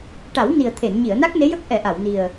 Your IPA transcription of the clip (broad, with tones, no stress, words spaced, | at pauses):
ʈa˨˩˦wni˨˩ə̯t̪ʰe˨˩˨n ɲi˨˩˨ə̯ na˦˥k̚ne˧˥jə˦˥k̚ ʔɛ˨˩˦ʔa˨˩˨wni˨˩ə̯